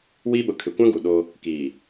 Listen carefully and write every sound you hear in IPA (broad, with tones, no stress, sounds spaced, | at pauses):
w iː˦ ɓ ʊ˨ kʰ ɪ˨ kʷ ã˦ ɡ u˨ ɗ o˦ | k iː˨